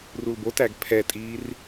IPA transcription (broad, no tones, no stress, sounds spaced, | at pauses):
r u l b o t æ ɡ pʰ ɛ tʼ iː r